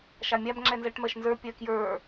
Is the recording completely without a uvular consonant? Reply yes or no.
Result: yes